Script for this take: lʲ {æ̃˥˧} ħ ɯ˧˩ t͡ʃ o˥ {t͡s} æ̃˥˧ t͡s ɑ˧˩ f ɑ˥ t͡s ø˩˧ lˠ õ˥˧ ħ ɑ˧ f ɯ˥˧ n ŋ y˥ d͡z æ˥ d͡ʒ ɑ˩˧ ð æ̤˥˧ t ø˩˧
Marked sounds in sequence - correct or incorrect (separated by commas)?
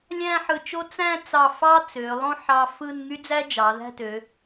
correct, correct